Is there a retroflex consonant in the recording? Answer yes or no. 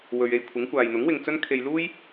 no